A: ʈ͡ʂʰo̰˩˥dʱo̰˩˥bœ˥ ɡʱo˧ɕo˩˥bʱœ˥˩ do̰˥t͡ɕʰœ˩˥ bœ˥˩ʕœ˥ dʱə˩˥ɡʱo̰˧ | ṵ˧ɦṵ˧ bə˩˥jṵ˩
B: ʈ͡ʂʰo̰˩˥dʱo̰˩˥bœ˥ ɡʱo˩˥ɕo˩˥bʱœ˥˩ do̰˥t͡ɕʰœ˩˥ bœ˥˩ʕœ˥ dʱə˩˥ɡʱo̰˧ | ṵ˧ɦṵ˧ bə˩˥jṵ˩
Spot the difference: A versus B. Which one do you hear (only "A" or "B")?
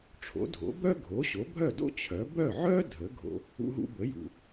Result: B